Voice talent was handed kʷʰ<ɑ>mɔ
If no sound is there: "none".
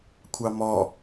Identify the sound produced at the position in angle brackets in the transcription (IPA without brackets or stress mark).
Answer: ɑ